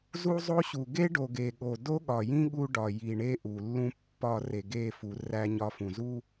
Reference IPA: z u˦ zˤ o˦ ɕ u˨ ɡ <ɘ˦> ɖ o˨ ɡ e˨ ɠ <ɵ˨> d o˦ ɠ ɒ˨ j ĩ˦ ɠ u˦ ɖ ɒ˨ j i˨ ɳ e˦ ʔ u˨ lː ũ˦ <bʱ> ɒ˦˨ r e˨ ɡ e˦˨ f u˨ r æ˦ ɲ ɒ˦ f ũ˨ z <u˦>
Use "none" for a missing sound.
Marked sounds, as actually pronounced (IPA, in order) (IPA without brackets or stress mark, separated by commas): e˦, o˨, pː, u˦